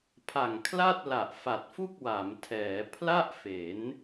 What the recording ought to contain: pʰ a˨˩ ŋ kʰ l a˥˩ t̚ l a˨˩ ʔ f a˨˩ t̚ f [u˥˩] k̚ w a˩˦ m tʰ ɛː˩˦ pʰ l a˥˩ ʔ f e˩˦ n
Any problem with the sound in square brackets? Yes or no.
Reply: no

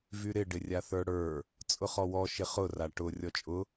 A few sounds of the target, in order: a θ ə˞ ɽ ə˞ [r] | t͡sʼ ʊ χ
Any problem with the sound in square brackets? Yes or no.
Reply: yes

